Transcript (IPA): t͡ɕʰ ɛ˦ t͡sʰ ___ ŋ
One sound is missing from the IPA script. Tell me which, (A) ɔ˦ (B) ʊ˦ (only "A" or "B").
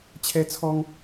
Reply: A